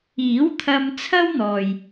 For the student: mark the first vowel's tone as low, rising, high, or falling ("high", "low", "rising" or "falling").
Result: rising